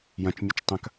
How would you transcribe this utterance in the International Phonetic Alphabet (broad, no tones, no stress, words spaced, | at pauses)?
jɐ̃t͡ʃmʲɨt͡ʃ tˤɐ̃k